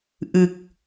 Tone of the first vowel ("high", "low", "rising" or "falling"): low